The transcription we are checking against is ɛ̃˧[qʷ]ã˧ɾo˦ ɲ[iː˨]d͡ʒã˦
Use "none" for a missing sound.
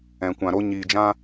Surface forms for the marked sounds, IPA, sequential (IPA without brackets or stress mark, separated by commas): kʷ, iː˧